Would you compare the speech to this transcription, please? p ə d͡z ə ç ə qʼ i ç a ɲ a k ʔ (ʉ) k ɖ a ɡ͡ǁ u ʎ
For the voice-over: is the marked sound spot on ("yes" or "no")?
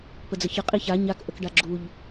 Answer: no